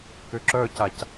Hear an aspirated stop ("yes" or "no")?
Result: no